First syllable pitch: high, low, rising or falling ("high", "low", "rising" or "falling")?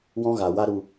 high